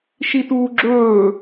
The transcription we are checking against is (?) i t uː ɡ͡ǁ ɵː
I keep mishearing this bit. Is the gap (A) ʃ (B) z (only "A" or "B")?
A